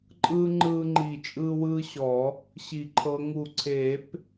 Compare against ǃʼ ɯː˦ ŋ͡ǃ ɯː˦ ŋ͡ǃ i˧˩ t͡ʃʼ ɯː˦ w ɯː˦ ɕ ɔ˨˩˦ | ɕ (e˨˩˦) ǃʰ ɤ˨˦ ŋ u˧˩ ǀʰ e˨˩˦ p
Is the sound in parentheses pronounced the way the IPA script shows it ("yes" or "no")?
no